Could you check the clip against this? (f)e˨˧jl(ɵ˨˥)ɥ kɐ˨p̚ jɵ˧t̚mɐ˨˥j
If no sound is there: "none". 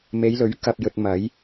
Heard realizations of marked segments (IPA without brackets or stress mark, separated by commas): m, ɵ˨˥